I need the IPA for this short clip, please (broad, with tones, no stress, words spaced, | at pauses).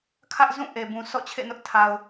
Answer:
kʰä˦ʔzũ˦˨ ʔe˨bũ˨ sɔ̰˦˨t͡ɕʰḛ˦˨nʊ˦ʔ tʰa˨ʊ̯